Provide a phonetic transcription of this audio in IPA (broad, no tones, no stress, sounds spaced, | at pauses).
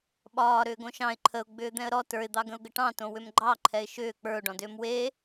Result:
ɓ ɒː ɾ ʏː ɡ õ ʃ ɑ̃ ɪ̯ ǃʰ ə ʊ̯ ɡ͡b ʏː d̪ ɛ̃ ə̯ ɾ ɔ t ə˞ ɪ̯ d̪ ɑ ɡ ə̃ ʊ̯ ɡ ə ʈ ɑ̃ t õ w ʏ m ɡ͡ǃ ɑ ǃʰ ɛ ɪ̯ ʃ ʏː k͡p ə˞ ʊ̯ ɖ ɔ̃ d ʏː m w e